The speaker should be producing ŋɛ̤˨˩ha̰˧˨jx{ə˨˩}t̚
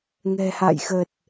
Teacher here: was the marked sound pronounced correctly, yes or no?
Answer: yes